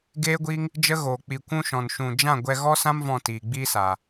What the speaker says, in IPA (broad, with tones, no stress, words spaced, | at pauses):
ɡeː˦ɡʷiː˦ŋ | d͡ʒə˦ɣoː˨ k͡pi˨kʷũ˧ʃɔ̃˨n ʃũ˨ d͡ʒã˦˨ ɡʷɛ˧ ɣɔ˦sã˦m vɔ̃˦˨tiː˨ɡ͡biː˦ saː˨